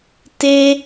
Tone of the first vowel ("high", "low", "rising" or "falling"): low